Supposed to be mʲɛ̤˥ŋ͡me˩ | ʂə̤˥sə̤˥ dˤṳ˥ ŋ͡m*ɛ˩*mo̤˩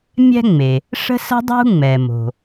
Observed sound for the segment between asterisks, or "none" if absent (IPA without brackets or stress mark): ɛ˩